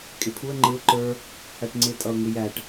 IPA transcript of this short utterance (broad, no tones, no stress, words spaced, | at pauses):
kʼɪpʰuə̯ ŋ͡ǃɪʊ̯ ǃə˞ | hæʈŋ͡ǀɪ tʼʌʊ̯ŋɪjæʈ